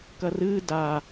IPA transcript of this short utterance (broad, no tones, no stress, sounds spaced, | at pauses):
k ɐ r ɨː d a